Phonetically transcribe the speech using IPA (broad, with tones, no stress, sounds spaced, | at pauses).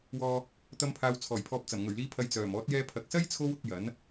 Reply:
w ɔː˧ | t̪ ɐ˧ m pʰ aː˨ w t͡sʰ ɔː˨˩ j pʰ ɔː˨ p̚ t͡s ɐ˨˩ m ŋ ɵ˨˩ ɥ l iː˨˧ pʰ ɐ˨ j t͡s œː˨˩ m ɔː˨˥ t̚ j ɛː˧ pʰ ɐ˨ k̚ s ɐ˥ j t͡sʰ o˥ w ʊ˧ k̚ j ɐ˨˥ n